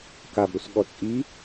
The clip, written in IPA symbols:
k a b ɾ u s ɠ ɔ t͡sʼ i

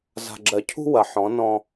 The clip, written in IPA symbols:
z a̤˨ ɡ͡ǁ ɜ˨ cʰ ṳ˦ w ɐ˨ ħ ɔ̃˨˦ n ɔ̃˦

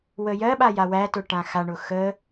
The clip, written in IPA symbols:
w ə j ɜ ɓ a j a w æ t ʊ ʈ ã x a ɳ ʊ x ə

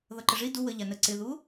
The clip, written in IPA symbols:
ð ʌ ǃ ə ʐ i d u w ə ʎ a n ə ǀ ɪ ð u

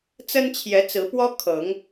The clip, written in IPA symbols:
t͡s ə˦ n t͡ɕʰ j ɛ˨˦ t͡s ɹ̩˨˦ p w ɔ˦ kʰ ɤ˨˦ ŋ

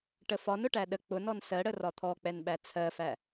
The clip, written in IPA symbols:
ʈ ə f ɒ n ʊ ʈ æ ɗ ə k͡p ʊ n ɔ n s ɜ ɽ ə r ɒ t̪ʰ ɔ k͡p ɛ n ɓ æ t͡sʰ ɜ f æ

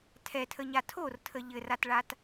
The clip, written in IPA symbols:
tʰ ɛ tʰ ə ɲ a tʰ o r tʰ ə ʎ ɘ r a t ɭ a t

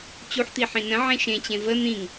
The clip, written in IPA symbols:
t͡ɕ u ħ t̪ i ħ ĩ n ə̃ ʕ ẽ ʃ ẽ t͡ɕ ẽ v ə n̪ ĩ ŋ

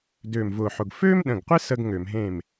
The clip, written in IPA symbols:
d øː˧˩ m v ʊː˧˩ ħ ʊ˩˧˩ ɡ f øː˥ m ɗ ə̃˩˧˩ ɡ qʷ ɪ˥ s əː˥ ɡ ŋ ø˧˩˧ m ɦ ẽ˥˩ m

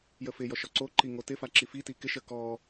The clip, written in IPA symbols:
j ə f ɪ j ɔ ʃ ɔ ǀ o ǃ i ŋ o t ɪ f a ǁ i f i t i k ɪ ʃ ə k ɔ

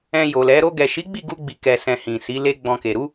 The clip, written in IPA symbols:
ɛ̃˧ j o˨ l ɛ˨˦ ɾ o˧ ɡ ɛ˨ ʃ i˨˦ ɡ͡b i˦˨ ɡ u˧ ɡ͡b i˨ k ɛ˧ s ɛ̃˧ h ĩ˨ s i˨˦ l e˦ ɡ͡b ɔ̃˧ k e˨ ɾ u˨˦

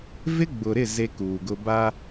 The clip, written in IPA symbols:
v ɪ˦ ɡ͡b ʊ˨ ɾ ɪ˦˨ z e˦ k uː˨ ɡ ʊ˦ b a˦

